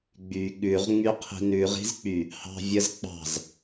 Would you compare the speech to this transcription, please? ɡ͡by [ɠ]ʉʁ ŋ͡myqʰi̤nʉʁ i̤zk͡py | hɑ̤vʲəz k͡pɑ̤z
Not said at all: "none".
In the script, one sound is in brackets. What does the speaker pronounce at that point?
ɠ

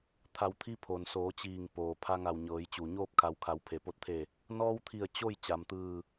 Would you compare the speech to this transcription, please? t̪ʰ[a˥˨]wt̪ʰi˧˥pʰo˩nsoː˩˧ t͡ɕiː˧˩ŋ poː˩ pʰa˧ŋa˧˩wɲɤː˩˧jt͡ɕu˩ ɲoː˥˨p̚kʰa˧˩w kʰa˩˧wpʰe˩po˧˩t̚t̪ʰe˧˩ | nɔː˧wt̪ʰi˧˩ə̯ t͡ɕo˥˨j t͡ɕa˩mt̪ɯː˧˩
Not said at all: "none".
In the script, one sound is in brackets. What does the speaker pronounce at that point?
a˧˩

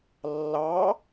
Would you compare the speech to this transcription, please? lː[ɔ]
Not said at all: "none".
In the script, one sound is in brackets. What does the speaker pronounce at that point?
ɑ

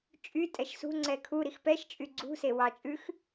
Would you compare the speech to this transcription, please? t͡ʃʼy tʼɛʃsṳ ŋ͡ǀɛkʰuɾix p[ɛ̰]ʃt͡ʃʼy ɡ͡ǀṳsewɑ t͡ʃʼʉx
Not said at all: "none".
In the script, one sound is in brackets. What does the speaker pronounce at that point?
ɛ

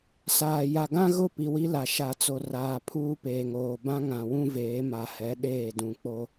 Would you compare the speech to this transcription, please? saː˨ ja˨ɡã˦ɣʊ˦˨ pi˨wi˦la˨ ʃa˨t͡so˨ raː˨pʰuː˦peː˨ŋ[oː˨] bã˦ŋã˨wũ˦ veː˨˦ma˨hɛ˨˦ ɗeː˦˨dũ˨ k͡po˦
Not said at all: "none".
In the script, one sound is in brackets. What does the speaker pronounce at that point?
oː˨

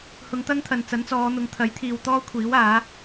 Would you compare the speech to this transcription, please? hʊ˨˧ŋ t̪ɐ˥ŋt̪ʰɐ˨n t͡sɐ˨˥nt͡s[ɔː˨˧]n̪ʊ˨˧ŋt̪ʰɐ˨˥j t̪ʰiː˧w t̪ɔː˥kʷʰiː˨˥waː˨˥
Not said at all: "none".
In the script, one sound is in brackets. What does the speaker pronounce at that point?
ɔː˨˧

